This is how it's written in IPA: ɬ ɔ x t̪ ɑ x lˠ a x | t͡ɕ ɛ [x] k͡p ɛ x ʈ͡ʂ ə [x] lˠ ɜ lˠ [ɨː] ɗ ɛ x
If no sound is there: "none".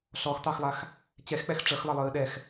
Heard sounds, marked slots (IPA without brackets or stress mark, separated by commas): x, x, ɨː